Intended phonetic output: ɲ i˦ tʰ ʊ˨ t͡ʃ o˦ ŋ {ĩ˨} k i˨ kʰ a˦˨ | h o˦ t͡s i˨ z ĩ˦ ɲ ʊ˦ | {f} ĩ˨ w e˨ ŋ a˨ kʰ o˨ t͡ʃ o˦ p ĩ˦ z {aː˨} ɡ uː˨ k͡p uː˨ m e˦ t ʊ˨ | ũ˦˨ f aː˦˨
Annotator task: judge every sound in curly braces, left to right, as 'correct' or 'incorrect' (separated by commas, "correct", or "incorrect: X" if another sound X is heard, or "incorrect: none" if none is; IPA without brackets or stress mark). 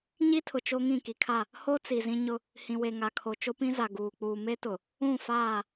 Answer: incorrect: ĩ˦˨, incorrect: h, incorrect: a˨